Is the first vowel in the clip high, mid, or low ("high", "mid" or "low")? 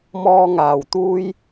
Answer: mid